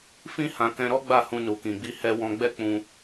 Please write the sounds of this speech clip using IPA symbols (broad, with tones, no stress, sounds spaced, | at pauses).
f ĩ˦ h ã˧ k ɛ̃˧ ɾ ɔ˦ ɡ͡b a˦˨ h ũ˧ n u˨ k ĩ˨ ɡ͡b i˧ h ɛ˧ w ɔ̃˧ ɡ͡b ɛ˦ k͡p ũ˧